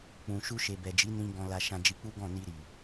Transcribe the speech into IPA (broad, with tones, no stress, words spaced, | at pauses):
k͡pũ˨ ʃu˧ʃe˨bɛ˨d͡ʒi˨˦ nĩ˧ ɡɔ̃˧la˧ ʃã˧d͡ʒi˧k͡pu˦ ɡɔ̃˦˨ ni˧ɾi˨